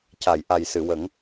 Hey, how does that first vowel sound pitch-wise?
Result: low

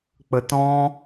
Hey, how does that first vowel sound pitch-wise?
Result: low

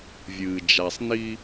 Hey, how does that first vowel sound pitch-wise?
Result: low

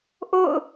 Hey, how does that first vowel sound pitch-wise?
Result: falling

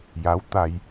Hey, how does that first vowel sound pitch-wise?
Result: rising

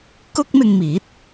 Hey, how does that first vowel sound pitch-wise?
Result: high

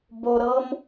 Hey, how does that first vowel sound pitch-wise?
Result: low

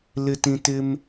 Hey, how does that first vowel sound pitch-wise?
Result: low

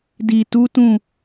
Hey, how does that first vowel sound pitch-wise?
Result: low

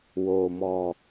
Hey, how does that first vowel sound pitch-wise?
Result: low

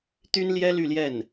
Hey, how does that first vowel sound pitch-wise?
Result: high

